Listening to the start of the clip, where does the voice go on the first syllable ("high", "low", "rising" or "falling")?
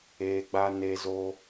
low